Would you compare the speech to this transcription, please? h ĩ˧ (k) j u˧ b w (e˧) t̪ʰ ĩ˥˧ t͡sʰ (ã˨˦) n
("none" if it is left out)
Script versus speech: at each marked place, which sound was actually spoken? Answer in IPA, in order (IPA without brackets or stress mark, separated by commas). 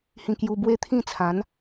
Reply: k, e˦, ã˨˦